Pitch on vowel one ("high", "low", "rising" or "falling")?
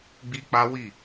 high